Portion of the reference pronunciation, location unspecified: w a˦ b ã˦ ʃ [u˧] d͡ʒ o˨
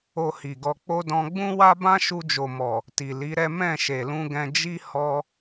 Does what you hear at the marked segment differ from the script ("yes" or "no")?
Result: no